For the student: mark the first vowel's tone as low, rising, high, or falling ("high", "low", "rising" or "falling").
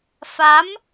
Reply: rising